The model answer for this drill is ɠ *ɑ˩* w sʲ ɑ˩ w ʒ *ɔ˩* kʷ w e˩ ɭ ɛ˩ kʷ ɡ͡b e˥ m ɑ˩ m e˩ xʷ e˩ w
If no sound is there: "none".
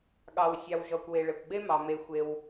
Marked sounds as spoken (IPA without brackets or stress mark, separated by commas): ɑ˩, ɔ˩